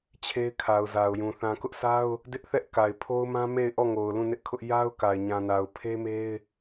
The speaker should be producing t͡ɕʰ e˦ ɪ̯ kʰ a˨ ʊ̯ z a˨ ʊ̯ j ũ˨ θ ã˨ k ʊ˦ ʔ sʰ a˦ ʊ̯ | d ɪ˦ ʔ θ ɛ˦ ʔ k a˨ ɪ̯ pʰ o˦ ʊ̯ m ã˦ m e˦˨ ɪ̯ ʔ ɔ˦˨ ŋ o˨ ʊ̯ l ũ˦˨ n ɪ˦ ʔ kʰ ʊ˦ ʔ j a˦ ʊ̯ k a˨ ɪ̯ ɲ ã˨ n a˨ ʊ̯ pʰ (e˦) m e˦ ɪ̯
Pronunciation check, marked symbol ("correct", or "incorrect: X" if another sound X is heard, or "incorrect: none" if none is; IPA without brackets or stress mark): correct